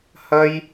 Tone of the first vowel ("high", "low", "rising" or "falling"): high